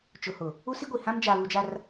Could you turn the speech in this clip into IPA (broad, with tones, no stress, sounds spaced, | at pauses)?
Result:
t͡ʃ ʊ˨ h ʊ˨ | u˦ s i˦ ɡʷ i˨ h ã˦ m d͡ʒ a˨ β u˨ d͡ʒ a˨ r